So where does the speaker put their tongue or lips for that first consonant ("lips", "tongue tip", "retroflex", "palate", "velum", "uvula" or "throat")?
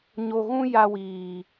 palate